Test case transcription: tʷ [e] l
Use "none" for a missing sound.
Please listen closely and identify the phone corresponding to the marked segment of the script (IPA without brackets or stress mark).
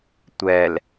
ɛ